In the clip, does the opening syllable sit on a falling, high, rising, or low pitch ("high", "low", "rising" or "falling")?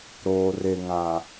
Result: low